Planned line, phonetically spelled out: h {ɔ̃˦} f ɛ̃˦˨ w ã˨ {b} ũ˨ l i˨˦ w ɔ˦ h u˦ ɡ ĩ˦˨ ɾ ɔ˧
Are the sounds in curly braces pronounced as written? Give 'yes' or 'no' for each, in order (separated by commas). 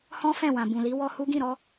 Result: yes, yes